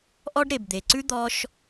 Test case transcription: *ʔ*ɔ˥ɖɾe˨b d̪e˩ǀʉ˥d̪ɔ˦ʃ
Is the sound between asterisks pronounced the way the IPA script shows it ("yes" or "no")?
yes